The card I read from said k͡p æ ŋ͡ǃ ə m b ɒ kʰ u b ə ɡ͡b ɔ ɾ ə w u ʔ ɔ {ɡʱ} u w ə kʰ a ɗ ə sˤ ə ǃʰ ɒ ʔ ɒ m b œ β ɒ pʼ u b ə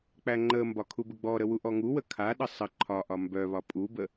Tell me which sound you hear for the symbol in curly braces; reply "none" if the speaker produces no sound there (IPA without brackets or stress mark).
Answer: ŋ